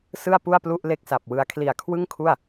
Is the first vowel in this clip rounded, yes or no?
no